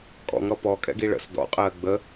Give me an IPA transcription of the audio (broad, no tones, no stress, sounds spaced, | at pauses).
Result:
kʼ ɔ̰ ŋ ɾ ɔ p ɔ kʼ ɛ̰ ɡ i ɭ ə̰ s d ɔ̰ qʼ ɜː ɡ͡b ə